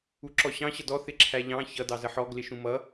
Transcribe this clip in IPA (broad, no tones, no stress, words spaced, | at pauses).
uǁɔɕɑ̃ ɕʌdɔ θɪǁʰæʎɑ̃ çʌ dɑzəħɔ ɡlɪʃũmʌ